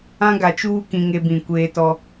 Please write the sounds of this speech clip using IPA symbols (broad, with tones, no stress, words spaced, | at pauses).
ã˦ɡa˨t͡ʃuː˦ kĩ˦ŋe˦bĩ˦˨ kʷeː˦tɔ˦